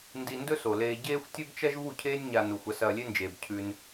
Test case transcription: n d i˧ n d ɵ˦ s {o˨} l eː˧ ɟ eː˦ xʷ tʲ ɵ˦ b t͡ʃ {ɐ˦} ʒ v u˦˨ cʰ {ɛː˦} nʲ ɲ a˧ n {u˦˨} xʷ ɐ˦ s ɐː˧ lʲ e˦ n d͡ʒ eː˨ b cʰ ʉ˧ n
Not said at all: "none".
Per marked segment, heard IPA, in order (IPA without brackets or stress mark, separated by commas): o˨, ɐ˦, eː˦, u˨